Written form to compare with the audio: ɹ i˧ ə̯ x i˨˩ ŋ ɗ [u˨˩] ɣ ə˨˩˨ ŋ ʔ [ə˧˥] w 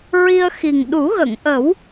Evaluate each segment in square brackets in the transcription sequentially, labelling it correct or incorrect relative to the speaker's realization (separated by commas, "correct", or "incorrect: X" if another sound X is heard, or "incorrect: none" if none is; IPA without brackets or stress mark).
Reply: incorrect: u˨˩˦, incorrect: ə˨˩˦